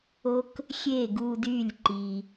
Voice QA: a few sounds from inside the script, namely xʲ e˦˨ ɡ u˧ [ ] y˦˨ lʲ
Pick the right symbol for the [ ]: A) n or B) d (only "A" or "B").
B